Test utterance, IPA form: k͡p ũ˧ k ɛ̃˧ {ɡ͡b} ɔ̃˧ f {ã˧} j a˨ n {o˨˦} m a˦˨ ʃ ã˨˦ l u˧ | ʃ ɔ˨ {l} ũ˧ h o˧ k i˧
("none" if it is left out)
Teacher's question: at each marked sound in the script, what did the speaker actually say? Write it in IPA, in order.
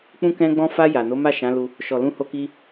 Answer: ɡ͡b, a˧, o˨˦, l

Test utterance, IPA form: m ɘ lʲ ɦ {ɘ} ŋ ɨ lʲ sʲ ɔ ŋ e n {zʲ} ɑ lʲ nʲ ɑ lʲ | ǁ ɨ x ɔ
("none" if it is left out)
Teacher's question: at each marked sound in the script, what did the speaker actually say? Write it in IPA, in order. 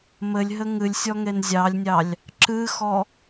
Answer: ɘ, zʲ

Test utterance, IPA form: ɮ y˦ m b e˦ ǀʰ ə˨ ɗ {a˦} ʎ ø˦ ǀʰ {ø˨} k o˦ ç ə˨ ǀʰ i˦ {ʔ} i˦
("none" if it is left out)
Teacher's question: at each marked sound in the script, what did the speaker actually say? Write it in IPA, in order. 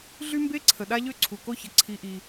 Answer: a˦, u˨, ʔ

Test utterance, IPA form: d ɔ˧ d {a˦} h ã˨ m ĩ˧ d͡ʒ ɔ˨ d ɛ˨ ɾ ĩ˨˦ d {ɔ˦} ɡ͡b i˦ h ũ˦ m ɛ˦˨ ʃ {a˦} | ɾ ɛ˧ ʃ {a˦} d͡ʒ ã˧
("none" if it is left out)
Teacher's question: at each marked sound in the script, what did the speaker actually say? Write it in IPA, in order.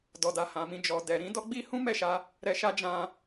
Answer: a˧, ɔ˦, a˧, a˦

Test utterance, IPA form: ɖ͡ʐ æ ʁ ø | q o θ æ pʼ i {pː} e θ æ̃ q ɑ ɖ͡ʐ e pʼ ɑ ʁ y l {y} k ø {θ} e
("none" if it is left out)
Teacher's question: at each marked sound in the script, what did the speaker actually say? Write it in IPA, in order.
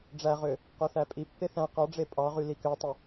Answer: pː, i, tˤ

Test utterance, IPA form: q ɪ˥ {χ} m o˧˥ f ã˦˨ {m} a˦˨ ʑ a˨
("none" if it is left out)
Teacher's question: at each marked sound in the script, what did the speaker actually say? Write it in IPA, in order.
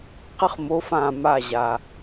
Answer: χ, m

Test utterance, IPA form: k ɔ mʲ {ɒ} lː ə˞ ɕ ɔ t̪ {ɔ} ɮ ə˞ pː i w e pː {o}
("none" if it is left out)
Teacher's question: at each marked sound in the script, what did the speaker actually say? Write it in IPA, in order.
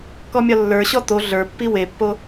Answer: ɒ, o, o

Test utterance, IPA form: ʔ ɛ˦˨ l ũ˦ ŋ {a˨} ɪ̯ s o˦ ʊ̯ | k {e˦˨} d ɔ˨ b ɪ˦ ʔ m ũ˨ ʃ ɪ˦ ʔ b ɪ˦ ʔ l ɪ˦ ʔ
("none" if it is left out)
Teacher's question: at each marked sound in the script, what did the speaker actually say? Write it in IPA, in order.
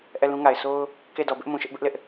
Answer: a˨, e˦˨

